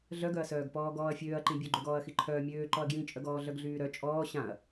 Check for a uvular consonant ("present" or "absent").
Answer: absent